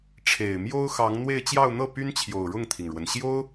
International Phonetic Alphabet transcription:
ʈ͡ʂʰe˨˩ɪ̯mjo˥ʊ̯xɑ˧˥ŋn̪we˥˧ɪ̯ t͡ɕjɑ˥˧ʊ̯n̪ɤ˥˩py˥nt͡ɕʰjo˨˩ʊ̯ ɻʊ˥˩ŋt̪ʰi˩ŋɻwə˩n ɕjo˥ʊ̯

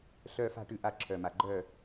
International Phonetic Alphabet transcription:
ɬœː˦fa̤˥˨ ʈʉ˥˨ʔa˥˨ǁʰœ˨˩ ma˨˩ɡ͡ǃœː˥˨

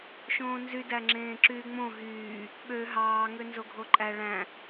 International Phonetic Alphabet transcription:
ʃõːnzy dæŋ͡ǁẽːǁyːŋ͡mõ ɦyː | ɓø ɦɑː ŋønzoɡʱoǃʼæ ɭæ̃

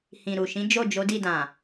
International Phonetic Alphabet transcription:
hĩ˨ɾu˨ ʃĩ˨˦ d͡ʒo˦˨d͡ʒo˨˦di˦˨ dã˨

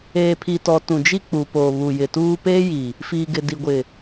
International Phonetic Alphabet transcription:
eː˨pʰi˨tɔ˨ tũ˨d͡ʒi˦k͡pu˨poː˨ βu˨jɪ˨ tuː˦ peː˦ji˨ | fiː˨ɡɪ˨ di˨ɡʷɪ˨

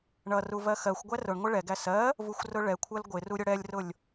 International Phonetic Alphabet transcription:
ɳʌru vɜxɜxʷɡʷæ rʊɳŋʷɪ ɭɛɡæ sɜ | vuxʷrʊɭɛkʷʰɜl ɡʷɪru ɾʲʊɽɛlʲrʊlʲ

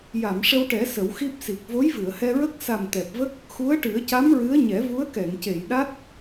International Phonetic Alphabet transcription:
ja˨˩˨mʂə˧wʈɛ˨˩˦ sə˨˩˦wxi˦˥p̚si˨˩k̚ vo˧˥jvɨ˨˩˨ə̯hɛ˧ɹə˦˥k̚ sa˨˩m t̪ɛ˨˩p̚və˦˥k̚ | xu˧˥ə̯ʈɨ˨˩˦ə̯ca˧˥m ɹɨ˧˥ə̯ɲɛ˨˩˦ vu˧˥ə̯kɛ˨˩˨ŋce˨˩˨jɗa˦˥t̚

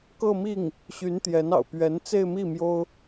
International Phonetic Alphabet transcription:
kɤ˥˧mi˥˩ŋ | ɕy˧˥nt̪jɛ˧˥n ɑ̰˨˩ʊ̯pɥɛ˧˥n t͡se˥˧ɪ̯mi˥˩ mjo˥ʊ̯

